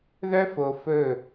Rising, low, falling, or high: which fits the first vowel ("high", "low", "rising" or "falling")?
high